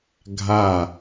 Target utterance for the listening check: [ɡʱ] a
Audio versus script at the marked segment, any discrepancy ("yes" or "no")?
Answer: no